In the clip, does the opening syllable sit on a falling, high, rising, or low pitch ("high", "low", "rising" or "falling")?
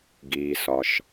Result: low